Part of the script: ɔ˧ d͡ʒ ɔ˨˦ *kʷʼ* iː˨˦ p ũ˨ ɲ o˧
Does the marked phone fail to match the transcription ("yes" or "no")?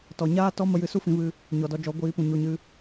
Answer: yes